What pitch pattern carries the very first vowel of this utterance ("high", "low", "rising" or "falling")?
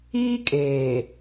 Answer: high